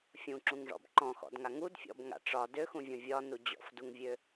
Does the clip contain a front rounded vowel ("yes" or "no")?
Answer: yes